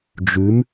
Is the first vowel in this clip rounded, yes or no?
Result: yes